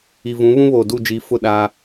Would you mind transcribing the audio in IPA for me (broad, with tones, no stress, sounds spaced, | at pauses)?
i˨ v ũ˨˦ β ũ˦ β oː˨ d u˦˨ d͡ʒ i˨˦ f ʊ˦˨ ɗ aː˦